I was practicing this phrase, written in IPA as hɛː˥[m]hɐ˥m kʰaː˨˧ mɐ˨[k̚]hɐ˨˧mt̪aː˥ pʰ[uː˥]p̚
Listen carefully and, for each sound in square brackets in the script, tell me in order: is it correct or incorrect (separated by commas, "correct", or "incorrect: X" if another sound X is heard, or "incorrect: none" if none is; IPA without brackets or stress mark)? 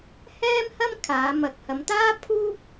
correct, correct, correct